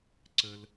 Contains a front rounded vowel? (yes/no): no